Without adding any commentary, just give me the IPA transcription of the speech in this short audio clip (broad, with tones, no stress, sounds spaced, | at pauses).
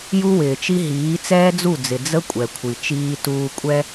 j u˦ w ɪː˨ t͡ʃ i˦ ɦ iː˨˦ t͡s ɛː˦ d͡z u˦˨ d͡z ɪ˨ d͡z ə˦ kʷʼ ɛ˨ kʷʰ i˨ t͡ʃ iː˦ t uː˦ kʷʼ ɛ˦